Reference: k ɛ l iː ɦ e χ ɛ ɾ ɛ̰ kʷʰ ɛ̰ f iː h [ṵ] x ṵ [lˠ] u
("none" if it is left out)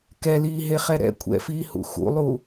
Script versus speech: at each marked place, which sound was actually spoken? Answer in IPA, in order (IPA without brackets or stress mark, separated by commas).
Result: ṵ, lˠ